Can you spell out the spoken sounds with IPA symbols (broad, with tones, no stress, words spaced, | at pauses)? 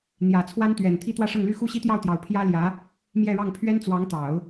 n̪jä˨˩t͡sʰwa˥nt̪ɥɛ˨˩n t̪ʰi˥t̪wä˥˧ʂɤ˥˩ŋly˥ xu˥˩ɕi˥t̪jɑ˥˩ʊ̯t̪jɑ˨˩ʊ̯ pʰjä˥ljä˧˥ | mjɛ˥˧ɻɑ˥˩ŋ pʰɥɛ˥nt͡swɑ˧˥ŋt̪ɑ˨˩˦ʊ̯